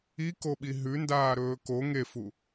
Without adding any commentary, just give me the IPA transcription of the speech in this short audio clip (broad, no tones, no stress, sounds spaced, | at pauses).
i k o ɓ i ɦ ʉ n d aː ɾ ɵː k o ŋ e f u